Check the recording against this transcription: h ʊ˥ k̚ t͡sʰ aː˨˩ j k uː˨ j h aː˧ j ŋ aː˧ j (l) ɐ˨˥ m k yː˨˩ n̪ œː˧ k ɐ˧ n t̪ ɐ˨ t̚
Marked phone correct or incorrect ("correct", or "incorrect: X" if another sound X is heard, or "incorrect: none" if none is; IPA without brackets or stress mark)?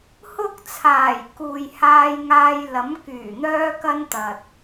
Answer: correct